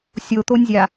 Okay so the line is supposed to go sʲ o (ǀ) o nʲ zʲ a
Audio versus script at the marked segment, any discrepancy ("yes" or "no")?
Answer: yes